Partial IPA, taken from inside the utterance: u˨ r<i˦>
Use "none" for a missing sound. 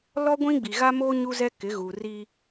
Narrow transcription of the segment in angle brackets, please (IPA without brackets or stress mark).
i˦